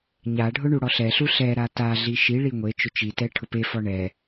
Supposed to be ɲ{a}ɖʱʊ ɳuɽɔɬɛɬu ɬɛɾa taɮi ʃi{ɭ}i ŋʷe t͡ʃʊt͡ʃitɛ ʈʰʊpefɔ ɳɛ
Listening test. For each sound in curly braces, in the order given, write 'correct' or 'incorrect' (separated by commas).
correct, correct